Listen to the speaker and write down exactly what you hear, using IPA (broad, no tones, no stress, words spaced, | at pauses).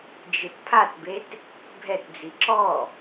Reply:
d͡ʒɯtpʰatbet | bʱɛtd͡zi ǁɔ